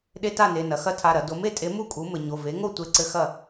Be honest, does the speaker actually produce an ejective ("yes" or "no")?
yes